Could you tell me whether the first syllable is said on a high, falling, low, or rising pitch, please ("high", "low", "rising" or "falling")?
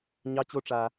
rising